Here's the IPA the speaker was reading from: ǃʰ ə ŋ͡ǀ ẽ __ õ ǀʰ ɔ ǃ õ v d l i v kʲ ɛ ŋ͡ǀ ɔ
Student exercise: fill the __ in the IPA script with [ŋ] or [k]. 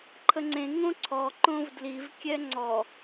ŋ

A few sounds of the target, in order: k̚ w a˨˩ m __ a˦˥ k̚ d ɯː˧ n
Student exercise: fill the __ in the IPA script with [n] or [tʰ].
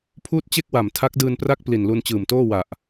tʰ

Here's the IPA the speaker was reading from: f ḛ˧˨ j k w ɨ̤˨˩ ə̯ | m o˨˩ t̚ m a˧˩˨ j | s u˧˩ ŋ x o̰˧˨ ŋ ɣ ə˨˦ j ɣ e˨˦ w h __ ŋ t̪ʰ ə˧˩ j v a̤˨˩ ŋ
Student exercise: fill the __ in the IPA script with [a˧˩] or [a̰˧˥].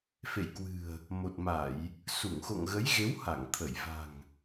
a˧˩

